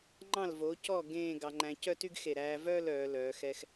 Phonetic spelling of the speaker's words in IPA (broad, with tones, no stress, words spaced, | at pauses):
ŋ͡ǃɑ̃˧˩lvo˩˧cɔ˧˩ ɡẽː˧˩ ɡɑ˧ŋ͡ǃæ̃˧ cœ˥˧ty˥˧ɡxe˧˩ɾæː˧ vœː˥˧lœː˩˧ lœː˩˧xɛ˧x